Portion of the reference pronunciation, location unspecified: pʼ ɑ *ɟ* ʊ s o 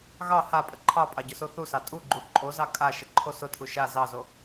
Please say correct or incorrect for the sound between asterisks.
correct